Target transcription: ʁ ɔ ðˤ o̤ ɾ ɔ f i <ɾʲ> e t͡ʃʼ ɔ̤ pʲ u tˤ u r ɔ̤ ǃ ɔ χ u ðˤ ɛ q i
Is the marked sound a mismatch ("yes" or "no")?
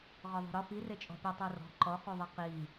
yes